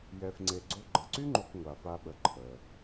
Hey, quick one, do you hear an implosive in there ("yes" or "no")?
yes